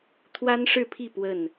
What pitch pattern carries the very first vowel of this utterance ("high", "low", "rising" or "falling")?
high